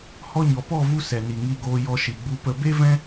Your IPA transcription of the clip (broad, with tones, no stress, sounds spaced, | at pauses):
h ɔ˧ ɲ ɔ˨ p ɔ˦˨ v u˧ s ɛ˨ n i˨ ŋ i˦˨ ɡ oː˧ j ɔ˧ ʃ i˨ ɡ͡b u˧ p ə˧ b e˦ v ɛ̃˦